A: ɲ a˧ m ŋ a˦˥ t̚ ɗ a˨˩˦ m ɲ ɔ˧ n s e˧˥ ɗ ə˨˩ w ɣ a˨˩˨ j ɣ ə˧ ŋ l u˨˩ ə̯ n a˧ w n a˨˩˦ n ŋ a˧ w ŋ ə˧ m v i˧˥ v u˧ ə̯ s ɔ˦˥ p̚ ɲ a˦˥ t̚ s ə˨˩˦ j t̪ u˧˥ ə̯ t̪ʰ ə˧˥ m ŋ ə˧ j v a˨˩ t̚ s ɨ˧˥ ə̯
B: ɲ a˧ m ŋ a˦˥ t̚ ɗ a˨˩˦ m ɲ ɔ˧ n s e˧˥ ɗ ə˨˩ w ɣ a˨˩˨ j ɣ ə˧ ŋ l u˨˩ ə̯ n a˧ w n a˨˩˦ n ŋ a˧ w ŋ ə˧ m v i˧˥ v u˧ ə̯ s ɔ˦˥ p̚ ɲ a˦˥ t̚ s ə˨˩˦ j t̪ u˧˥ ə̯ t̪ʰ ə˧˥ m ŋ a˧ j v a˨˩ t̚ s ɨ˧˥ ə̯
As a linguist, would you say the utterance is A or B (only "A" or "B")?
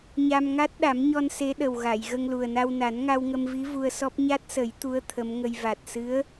A